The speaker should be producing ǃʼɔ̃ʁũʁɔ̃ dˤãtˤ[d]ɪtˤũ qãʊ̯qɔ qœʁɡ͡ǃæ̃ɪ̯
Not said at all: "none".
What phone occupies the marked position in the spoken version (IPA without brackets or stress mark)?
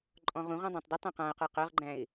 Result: d